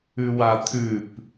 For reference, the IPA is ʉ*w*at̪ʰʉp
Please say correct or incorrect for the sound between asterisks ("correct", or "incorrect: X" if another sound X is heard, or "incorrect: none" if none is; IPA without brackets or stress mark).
correct